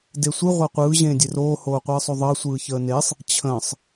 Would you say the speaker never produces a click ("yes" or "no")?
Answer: yes